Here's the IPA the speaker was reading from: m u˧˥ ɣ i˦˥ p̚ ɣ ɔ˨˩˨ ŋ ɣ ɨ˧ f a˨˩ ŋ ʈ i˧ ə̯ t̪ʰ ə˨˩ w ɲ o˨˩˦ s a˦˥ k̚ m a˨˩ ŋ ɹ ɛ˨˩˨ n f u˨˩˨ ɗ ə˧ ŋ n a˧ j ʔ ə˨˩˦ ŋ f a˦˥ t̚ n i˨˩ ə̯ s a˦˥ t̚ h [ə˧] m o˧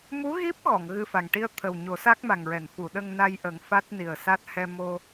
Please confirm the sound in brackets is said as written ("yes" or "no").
no